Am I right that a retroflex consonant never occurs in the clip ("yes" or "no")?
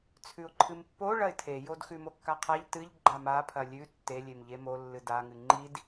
no